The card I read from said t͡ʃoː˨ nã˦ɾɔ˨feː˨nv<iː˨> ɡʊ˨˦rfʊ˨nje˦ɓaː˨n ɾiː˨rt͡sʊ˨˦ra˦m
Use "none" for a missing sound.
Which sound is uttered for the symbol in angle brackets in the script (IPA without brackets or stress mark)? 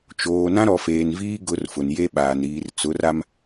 iː˦